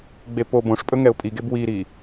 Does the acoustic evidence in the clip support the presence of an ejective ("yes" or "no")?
yes